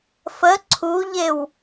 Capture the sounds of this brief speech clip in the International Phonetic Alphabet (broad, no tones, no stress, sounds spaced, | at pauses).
f ə ǀʰ u ʎ e w